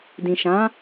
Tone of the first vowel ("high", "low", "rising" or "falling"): low